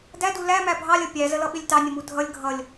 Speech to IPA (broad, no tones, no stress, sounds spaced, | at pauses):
d æ d u l æ m æ bʱ ɑ lʲ ʌ pʲ æ z ə l ʌ ɓ ɪ lʲ t ɑ nʲ ə m u dʱ ʌ lʲ ɡʱ ʌ lʲ